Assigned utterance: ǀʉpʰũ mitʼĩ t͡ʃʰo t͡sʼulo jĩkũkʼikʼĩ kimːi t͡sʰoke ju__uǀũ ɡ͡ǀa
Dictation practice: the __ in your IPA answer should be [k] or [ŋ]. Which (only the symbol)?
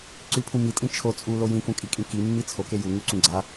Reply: ŋ